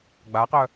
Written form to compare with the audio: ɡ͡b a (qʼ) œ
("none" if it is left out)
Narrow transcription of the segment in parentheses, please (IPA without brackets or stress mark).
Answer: q